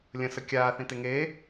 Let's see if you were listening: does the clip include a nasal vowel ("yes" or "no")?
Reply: yes